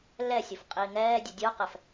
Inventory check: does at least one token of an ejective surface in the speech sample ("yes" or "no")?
yes